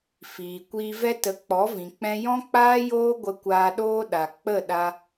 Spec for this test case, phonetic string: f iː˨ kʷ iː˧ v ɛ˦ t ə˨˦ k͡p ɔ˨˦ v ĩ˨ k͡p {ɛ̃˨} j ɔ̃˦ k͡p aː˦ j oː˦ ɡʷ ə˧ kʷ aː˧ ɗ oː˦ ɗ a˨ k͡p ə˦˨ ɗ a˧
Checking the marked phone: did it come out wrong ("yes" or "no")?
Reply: yes